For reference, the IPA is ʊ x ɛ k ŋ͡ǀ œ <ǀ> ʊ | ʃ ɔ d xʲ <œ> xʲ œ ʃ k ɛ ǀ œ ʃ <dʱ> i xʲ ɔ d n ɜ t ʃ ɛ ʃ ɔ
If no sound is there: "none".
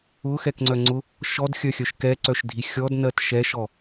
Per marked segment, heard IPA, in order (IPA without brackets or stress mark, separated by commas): ŋ͡ǀ, œ, dʱ